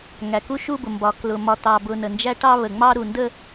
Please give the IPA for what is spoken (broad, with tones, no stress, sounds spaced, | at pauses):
ŋ æ˨ k u˦ ʃ u˦ b ʊ˨ m b ɒ˨ k l ʊ˨ m ɒ˨ t̪ ɑ˨ b ʊ˨ n ə˨ n d͡ʒ æ˦ ʈ ɑ˦ β ə˨ ŋ͡m ɑ˦ ɾ u˨ n d ə˦